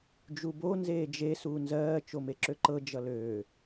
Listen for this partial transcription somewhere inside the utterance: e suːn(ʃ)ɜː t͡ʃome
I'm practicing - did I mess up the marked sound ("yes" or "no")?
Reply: yes